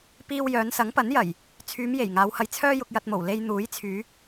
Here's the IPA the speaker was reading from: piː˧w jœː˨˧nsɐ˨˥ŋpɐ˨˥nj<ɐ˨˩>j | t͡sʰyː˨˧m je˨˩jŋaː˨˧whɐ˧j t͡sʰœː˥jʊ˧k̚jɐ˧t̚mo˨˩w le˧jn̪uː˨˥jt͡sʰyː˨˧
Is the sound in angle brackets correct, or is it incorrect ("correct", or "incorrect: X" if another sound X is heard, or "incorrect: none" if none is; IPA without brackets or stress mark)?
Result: correct